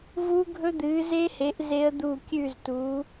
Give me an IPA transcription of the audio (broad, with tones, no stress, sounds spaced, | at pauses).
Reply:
v uː˦˥ ɡʱ ɵ˦˥ d̪ ɨː˨˦ z e˦˥ h e˨˦ ʔ z e˦˥ ə̯ d̪ uː˦˨ kʲ ʉ˦˨ z t u˨˦